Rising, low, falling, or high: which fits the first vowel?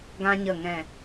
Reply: high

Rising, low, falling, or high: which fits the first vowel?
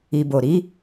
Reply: low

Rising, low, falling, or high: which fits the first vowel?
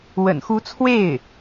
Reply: low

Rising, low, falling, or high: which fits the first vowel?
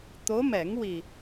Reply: rising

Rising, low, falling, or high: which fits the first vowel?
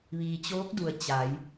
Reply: low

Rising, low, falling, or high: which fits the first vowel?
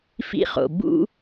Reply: high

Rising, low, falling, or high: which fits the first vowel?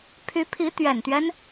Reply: rising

